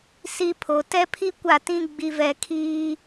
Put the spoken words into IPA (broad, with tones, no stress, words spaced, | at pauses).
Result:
si˦pʰo˨ tɛ˦pʰi˦ kʷa˦˨tĩ˦ ɡ͡bi˨vɛ˨ kʰiː˦